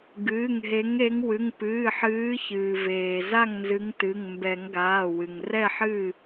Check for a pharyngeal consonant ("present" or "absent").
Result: present